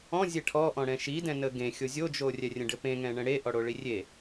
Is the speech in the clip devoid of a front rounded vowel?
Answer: yes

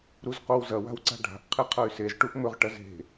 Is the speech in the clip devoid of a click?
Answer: no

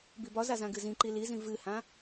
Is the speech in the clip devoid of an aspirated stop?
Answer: yes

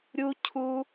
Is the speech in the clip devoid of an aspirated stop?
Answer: no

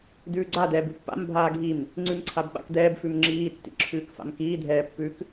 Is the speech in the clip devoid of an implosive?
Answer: no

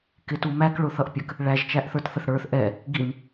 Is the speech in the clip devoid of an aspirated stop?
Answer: yes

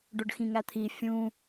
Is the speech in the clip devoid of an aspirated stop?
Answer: no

